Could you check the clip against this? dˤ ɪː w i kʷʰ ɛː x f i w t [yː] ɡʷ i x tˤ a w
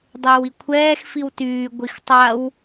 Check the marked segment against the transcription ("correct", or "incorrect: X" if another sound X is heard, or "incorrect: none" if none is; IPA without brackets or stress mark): correct